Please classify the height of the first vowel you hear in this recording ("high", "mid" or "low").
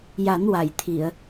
low